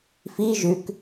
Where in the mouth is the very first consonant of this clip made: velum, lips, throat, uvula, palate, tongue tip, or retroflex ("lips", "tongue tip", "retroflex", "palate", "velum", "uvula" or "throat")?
lips